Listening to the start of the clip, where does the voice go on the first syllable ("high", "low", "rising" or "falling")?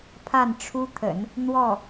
falling